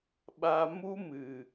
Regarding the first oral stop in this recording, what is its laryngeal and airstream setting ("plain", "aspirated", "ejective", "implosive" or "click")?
implosive